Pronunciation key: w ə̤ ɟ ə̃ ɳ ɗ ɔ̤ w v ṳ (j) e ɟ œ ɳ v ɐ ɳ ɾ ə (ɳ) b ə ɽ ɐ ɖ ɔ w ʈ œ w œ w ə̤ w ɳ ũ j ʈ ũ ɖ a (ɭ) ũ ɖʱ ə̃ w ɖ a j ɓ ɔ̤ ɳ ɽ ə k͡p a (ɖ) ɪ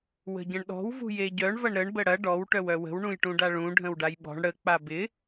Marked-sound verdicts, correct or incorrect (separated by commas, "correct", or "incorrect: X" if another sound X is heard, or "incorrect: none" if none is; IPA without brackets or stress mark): correct, correct, correct, incorrect: b